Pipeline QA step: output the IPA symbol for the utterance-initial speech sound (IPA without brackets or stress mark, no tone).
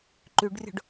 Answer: ǃ